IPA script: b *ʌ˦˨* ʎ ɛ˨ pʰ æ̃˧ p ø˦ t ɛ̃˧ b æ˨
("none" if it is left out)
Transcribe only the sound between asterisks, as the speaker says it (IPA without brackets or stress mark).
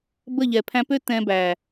ə˦˨